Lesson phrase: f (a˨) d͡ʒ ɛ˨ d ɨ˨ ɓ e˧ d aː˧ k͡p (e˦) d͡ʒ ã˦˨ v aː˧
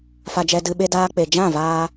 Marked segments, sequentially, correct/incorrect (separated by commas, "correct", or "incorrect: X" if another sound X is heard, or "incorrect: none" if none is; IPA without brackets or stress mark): correct, incorrect: e˨